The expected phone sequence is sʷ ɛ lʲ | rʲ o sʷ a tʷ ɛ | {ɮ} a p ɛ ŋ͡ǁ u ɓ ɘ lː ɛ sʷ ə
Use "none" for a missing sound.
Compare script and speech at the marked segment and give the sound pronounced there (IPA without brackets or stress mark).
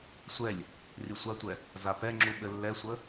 z